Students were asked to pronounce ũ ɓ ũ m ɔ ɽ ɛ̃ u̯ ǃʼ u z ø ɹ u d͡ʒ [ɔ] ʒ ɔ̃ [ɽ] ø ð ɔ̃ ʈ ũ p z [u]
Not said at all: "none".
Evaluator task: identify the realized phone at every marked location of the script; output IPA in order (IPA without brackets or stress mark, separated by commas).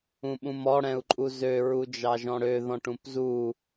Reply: ɑ, ɽ, u